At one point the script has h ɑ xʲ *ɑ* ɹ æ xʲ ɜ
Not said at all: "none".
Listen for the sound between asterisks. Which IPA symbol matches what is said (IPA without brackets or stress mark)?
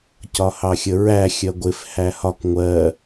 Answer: ə